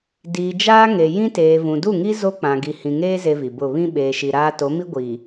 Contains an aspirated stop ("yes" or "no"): no